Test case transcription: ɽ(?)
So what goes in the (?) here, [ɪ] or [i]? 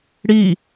i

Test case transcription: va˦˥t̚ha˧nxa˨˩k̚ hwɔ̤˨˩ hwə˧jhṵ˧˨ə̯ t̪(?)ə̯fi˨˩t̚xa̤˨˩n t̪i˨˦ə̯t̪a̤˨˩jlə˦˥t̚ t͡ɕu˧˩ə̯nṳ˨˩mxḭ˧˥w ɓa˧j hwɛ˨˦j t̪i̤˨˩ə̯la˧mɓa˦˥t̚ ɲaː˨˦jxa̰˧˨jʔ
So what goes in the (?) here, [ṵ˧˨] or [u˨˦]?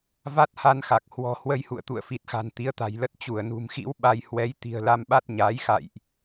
ṵ˧˨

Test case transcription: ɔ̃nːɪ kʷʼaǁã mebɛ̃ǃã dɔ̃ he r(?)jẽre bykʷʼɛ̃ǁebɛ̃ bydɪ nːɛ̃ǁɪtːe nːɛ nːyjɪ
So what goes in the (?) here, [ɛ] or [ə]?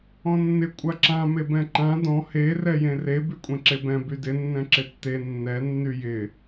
ɛ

